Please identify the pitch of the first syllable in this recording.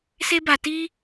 high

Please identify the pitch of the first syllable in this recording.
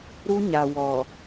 high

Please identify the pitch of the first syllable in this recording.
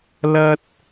high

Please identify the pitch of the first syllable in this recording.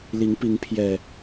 rising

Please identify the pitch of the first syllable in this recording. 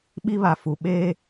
high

